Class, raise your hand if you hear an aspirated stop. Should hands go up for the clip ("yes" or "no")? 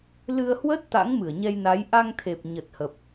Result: yes